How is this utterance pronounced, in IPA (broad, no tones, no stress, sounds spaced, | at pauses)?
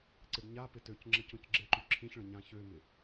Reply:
ǀ ɪ ɖ ɲ a p ɪ t ø c ŋ͡ǁ ə c õ c ɡ͡ǁ ɪ ǃ y ǁʰ ĩ ç ɭ ə̃ ɲ ã ç ø m ɪ